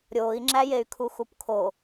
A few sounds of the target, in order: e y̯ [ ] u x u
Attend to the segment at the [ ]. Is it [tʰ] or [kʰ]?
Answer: kʰ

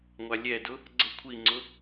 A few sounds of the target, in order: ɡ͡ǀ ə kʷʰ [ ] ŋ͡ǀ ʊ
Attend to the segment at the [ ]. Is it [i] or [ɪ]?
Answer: i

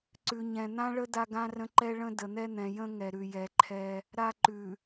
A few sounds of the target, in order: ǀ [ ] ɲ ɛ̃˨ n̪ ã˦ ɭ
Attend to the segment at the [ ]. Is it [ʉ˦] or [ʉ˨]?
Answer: ʉ˨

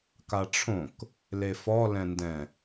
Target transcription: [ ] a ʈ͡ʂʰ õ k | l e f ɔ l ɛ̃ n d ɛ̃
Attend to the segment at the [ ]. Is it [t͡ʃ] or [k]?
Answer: k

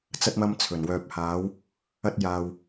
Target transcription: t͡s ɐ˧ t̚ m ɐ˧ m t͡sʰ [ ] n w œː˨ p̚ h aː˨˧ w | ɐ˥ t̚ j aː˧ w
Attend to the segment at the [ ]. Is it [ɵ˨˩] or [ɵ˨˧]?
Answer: ɵ˨˩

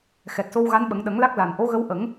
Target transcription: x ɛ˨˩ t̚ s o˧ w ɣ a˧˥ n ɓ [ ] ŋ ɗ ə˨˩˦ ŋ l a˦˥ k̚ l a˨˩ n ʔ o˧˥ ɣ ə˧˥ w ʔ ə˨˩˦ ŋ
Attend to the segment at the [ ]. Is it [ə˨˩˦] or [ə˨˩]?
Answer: ə˨˩˦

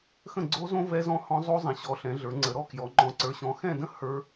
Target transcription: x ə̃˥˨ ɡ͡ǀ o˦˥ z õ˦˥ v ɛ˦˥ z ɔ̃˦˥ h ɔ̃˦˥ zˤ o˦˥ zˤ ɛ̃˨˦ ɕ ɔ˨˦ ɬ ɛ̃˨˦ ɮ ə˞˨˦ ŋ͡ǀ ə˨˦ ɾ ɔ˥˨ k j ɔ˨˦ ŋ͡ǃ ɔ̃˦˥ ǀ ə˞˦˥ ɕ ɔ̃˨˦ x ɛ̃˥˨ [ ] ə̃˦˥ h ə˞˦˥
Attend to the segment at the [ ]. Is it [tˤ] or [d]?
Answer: d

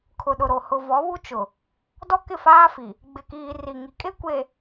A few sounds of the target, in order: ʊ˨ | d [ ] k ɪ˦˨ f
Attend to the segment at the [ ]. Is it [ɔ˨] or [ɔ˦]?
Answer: ɔ˦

